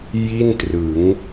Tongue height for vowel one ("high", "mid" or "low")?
high